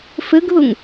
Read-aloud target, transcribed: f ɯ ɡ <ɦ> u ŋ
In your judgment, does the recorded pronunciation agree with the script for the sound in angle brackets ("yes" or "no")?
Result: yes